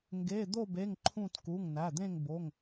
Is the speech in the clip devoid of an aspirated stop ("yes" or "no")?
no